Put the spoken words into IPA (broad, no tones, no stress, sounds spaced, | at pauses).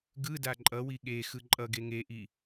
ɡ ɯ d a ǃʼ ʌ w i ɠ e x ɯ ǃʼ ʌ ɡ e ŋ e ʔ i